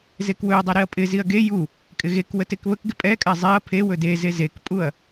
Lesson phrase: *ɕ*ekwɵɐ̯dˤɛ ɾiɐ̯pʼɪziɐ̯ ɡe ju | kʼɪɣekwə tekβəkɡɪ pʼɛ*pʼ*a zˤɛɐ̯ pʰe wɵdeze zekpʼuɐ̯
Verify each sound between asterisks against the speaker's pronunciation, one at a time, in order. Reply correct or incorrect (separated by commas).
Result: incorrect, incorrect